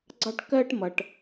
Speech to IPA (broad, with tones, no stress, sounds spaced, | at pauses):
ɡ͡ǀ ɑ˦ ʈ k ɜː˦ ʈ m ʌ˨ ʈ